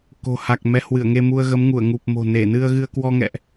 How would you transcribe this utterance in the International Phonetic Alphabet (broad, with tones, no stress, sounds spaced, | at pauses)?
k o̤˨˩ h a˨˩ k̚ m ɛ˨˦ h w ɨ˧˩ ə̯ ŋ e˧ m u˧ ə̯ ɣ ə˨˦ m ŋ u˧˩ ə̯ ŋ u˨˩ p̚ m o̤˨˩ n e˧˩ n ɨ˧ ə̯ ɣ ɨ˧ ə̯ k w ɔ˧ ŋ ɛ̰˧˨ ʔ